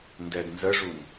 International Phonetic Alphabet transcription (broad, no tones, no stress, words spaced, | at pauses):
ndɛdnzəʐun